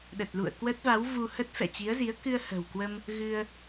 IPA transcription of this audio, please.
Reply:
ɗ ə˨˩ t̚ l ṵ˧˨ ə̯ k w ə˦˥ t̚ v a˨˦ w v u˧ h ə˦˥ t̚ f ɛ̰˧˨ t͡ɕ i˨˦ ə̯ z i˨˦ ə̯ k ɨ˧ ə̯ h ə̤˨˩ w k w ə˧ m | ɣ ɨ˧ ə̯

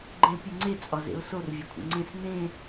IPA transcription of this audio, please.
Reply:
ɡ͡ǃ ɛ̃ ɪ̯ pʲ e ŋ͡ǀ e t͡sʼ ɒ z ḛ ʊ̯ s o r vʲ e kʷʰ ḭ ŋ͡ǀ ẽ s n ẽ

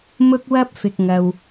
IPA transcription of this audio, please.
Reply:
m ʊ˥ k̚ w ɐ˥ p̚ f ɪ˨ k̚ ŋ ɐ˨ w

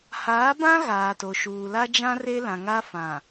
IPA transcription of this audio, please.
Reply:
h aː˨˦ b ã˦ ɣ aː˨ t o˨ ʃ uː˨ l a˦ d͡ʒ ã˦ r e˦ l ã˨ ŋ a˦ f ã˨

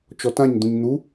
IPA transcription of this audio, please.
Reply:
t͡ʃ ɔ t ã ɲ d̪ ũ ɲ n̪ u

